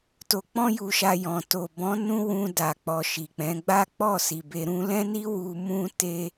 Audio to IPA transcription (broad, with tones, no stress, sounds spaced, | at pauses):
t o˧ k͡p ɔ̃˦ j u˧ ʃ a˧ j ɔ̃˨ t o˨ b ɔ̃˨˦ n ũ˦ w ũ˧ d a˨ k͡p ɔ˨ ʃ i˨ k͡p ɛ̃˨˦ ɡ͡b a˦ k͡p ɔ˦˨ s i˨ b e˧ ɾ ũ˦ l ɛ̃˦ n i˦ w u˧ m ũ˦ t e˦